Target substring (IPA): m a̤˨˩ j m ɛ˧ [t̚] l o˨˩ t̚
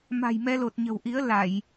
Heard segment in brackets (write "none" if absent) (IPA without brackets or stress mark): none